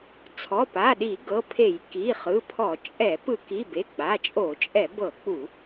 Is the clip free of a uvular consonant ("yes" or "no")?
no